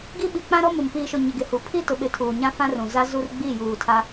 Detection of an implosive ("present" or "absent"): present